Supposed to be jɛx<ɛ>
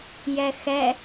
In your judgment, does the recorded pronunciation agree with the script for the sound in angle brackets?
yes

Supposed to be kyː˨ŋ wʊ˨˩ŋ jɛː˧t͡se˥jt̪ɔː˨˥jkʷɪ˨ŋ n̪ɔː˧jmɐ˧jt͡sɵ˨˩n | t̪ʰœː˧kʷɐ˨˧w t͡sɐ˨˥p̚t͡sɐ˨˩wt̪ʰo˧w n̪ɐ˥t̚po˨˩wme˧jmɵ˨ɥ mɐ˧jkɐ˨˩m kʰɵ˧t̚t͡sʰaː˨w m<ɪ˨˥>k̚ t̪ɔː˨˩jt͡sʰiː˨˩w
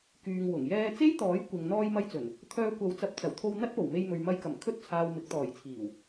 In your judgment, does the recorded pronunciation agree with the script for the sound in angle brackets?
yes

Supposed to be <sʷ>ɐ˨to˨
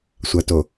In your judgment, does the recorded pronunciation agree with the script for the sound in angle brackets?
yes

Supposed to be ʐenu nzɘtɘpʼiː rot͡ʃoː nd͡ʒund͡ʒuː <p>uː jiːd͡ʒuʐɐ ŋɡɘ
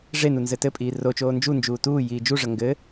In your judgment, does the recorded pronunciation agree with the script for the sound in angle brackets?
no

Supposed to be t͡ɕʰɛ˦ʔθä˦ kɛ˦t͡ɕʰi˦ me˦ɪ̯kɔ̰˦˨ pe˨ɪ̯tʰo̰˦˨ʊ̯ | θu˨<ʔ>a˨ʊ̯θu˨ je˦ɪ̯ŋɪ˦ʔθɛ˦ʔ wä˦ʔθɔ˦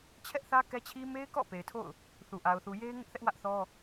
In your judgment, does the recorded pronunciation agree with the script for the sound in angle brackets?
yes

